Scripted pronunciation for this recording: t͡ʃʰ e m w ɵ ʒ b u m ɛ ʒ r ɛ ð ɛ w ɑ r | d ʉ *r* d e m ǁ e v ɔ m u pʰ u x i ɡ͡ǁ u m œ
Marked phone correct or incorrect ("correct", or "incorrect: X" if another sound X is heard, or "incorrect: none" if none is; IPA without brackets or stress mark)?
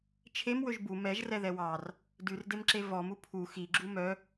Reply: correct